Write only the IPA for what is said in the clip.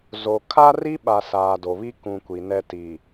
z o˨ kʰ a˦ r i˦ ɓ a˨ s aː˨ d o˨ β i˦ k ũ˨ kʷ i˨ n ɛ˦ t i˨

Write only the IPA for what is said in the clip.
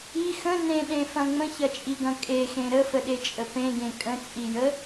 i x ə̃ n ẽ ɗ ẽ f ɐ̃ ŋ͡m ə̃ ç ɐ t͡ʃʼ i ɡ ɐ̃ kʼ e x ẽ ɾ ə f ə ɗ e t͡ʃʼ ə p ẽ ɡ ẽ kʼ ə̃ t͡sʼ i j ə

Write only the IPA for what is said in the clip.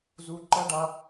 z u˧ ǃ ɐ˦ ɖ a˧

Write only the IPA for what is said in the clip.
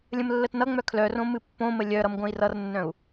lʲ ə̃ m lː ə t n ʌ ŋ͡m œ kʰ l œ r õ m ɨ pː õ m ə lʲ œ ɾ ʌ m ɡʷ œ̃ i̯ r ʌ r nː œ̃ u̯

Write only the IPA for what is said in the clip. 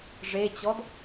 ʐ e t͡ɕ ɔ d

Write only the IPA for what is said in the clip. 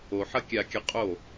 o ħ ɐ kʲ a kʲ ɐ qʼ o

